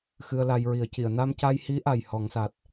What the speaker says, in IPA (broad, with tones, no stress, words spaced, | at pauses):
xɨ˧ə̯la˧j ɹi˨˩˦ə̯ci˨˩˨ə̯ na˧mca˧jhi˧˥ʔa˨˩j hɔ˨˩˦ŋsa˨˩t̚